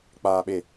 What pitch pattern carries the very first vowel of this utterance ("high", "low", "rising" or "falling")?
low